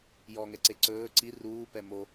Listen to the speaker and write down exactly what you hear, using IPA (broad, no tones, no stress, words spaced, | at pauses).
jɔŋɛǀe ǀɵː ǀi ruːpɛ mo